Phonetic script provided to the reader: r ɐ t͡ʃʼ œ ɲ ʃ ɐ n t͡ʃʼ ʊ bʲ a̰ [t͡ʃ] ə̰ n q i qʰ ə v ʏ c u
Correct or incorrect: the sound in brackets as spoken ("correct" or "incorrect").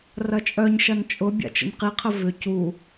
correct